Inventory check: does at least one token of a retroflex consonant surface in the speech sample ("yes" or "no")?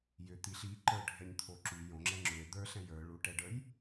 yes